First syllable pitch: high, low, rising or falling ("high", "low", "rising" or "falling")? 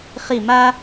falling